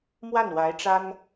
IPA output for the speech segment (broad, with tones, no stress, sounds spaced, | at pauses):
m w a˥˩ n w a˧˥ ɪ̯ ʈ͡ʂ a˥ n